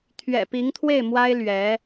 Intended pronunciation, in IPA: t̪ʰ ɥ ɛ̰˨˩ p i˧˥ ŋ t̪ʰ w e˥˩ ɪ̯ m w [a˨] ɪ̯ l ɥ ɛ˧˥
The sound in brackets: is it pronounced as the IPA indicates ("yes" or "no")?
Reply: no